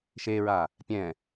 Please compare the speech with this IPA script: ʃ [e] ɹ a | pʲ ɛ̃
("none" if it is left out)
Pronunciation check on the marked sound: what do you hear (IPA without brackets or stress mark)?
e